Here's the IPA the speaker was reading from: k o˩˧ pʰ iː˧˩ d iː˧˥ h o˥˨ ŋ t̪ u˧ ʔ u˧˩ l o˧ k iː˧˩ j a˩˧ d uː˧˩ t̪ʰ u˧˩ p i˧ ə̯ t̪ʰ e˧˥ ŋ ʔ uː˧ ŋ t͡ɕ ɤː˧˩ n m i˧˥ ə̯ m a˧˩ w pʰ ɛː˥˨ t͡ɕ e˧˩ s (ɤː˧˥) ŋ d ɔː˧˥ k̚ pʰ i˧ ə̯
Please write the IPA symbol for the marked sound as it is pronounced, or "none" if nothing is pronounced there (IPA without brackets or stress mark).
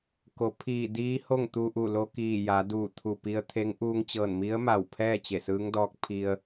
ɯː˧˥